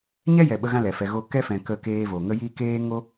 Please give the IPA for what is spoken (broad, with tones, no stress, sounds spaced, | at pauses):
ɲ ɛ˦ j ɛ˨ ɓ ə˧ ɣ ã˧ l ɛ˨ f ɛ˧ ɣ o˦ k ɛ˦ f ɛ̃˨ k ə˧ k eː˧ v o˨ ŋ ə˧ j i˧ k eː˦ ŋ o˦